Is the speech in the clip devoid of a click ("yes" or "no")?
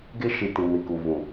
yes